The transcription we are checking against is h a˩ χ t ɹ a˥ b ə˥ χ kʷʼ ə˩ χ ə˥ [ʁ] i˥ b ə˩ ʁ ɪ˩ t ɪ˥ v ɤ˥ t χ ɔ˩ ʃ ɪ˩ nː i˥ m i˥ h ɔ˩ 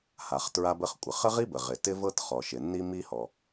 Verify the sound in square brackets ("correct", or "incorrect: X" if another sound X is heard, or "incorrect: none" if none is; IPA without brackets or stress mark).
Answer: correct